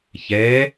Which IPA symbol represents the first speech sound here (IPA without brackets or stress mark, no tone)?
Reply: ç